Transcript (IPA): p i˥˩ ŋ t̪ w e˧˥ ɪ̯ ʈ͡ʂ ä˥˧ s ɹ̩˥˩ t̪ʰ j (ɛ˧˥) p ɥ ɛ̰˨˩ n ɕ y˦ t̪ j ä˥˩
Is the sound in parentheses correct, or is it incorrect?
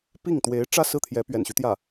correct